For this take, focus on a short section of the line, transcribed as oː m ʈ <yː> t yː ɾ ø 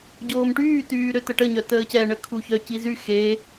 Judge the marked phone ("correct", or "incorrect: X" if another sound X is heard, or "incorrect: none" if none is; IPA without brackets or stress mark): correct